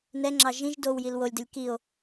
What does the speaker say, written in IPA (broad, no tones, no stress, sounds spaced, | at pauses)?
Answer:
n ɛ ŋ͡ǁ ɑ ʒ ĩ ʒ d o w j i l w o lʲ d ə lʲ k i o̯